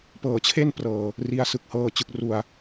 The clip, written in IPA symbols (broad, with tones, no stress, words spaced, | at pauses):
pɤː˨˩t͡ɕʰe˥˩n prɤː˨˩ | ri˦˥a̯sɯ˨˩k̚ hɤː˧ t͡ɕɯ˨˩k̚ru˨˩a̯